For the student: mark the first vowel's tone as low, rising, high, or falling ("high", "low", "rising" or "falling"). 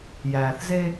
low